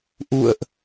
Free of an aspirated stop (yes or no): yes